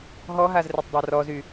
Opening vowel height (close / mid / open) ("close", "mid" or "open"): mid